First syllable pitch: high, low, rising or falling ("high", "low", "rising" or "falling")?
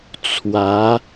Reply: rising